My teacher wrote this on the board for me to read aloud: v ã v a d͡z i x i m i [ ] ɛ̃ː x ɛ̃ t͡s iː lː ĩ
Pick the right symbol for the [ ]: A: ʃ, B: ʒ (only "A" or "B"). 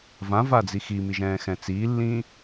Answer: B